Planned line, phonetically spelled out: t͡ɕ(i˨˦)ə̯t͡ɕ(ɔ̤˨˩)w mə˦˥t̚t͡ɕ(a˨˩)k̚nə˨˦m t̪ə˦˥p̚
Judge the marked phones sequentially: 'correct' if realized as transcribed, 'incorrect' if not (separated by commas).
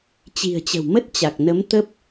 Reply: incorrect, incorrect, correct